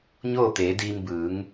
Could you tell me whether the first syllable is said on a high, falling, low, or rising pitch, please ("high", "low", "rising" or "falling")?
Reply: falling